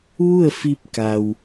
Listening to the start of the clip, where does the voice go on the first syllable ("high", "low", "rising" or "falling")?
falling